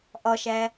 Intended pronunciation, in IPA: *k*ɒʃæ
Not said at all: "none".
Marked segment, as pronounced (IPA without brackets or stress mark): ʔ